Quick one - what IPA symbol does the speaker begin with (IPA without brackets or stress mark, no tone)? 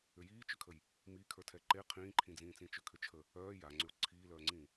ʏ